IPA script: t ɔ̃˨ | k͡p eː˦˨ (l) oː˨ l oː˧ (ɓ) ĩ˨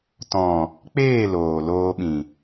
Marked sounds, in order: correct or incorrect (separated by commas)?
correct, correct